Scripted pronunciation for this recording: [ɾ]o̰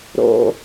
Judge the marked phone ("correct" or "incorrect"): correct